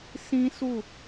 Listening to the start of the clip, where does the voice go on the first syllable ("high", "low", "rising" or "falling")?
high